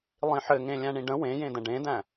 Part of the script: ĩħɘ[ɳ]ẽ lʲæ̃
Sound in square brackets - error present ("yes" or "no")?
yes